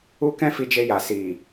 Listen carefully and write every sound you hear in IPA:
u˦ k ɛ̃˦ f i˧ d͡ʒ e˧ j a˨ s i˨

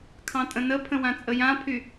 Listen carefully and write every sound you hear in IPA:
kʰ ɑ̃ tʼ ə̃ n ə pʰ ə̃ w ã t͡sʼ ə j ã pʰ y

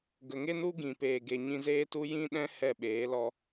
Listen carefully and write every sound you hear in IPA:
ɡ ə˨ ŋ e˦ n u˦ ɡ ĩ˨ p eː˨ ɡ e˨ ɲ ĩ˧ z eː˦ t u˦ j ĩ˦ ɗ ɛ̃˦ h ɛ˦˨ ɓ eː˨˦ l ɔ˦

